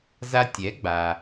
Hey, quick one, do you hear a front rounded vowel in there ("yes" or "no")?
no